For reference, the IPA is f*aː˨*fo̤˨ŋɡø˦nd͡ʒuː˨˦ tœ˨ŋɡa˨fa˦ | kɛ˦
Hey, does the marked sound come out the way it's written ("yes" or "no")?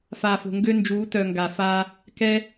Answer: yes